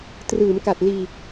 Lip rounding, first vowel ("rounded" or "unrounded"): unrounded